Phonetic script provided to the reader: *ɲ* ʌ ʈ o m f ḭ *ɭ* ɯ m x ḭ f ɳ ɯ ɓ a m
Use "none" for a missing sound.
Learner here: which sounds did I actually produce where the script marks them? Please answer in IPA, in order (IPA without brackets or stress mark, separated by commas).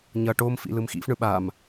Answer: ɲ, l